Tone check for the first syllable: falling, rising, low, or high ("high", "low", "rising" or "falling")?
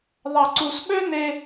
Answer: low